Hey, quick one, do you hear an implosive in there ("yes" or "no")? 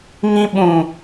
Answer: yes